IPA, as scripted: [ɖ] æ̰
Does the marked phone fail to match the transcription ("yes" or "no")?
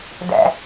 yes